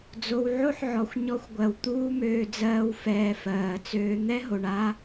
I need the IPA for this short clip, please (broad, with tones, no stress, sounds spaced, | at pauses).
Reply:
d͡z o˧ w ʕ o˦ ħ ʕ ɔ˨ xʷ ɲ ɔ˧ xʷ ɡʷ ɜ˨ w t̪ uː˦ m øː˧ d͡z ɜː˧ w f ɛː˧ f ɜː˨ t͡s øː˦ n̪ ɛ˦ ɦ o˨ ɳ a˦